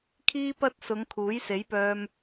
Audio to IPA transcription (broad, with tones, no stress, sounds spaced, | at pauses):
kʰ iː˥ p ɐ˥ t̚ s ʊ˨˧ ŋ kʰ uː˨˥ j s e˨˥ j p œː˧ m